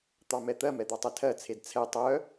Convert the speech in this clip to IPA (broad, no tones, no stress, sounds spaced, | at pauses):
t̪ ɑ m ɛ t̪ ɜ m ɛ d̪ ɑ tˤ ɛ tʰ ɜ t͡sʰ e d t͡sʰ ɛ tˤ œ